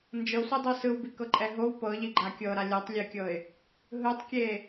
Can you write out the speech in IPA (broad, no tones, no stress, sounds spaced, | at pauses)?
n d͡ʒ ɤ sʷ i dˤ o s ɯ w b i k ɤ ǃʼ ɛ ɦ o w p ɤ ʎ i ɡ͡ǃ a kʲ ɤ ɾ a lʲ ɔ tˤ lʲ e kʲ ɤ ɪ̯ | ɦ ɯ tˤ kʲ e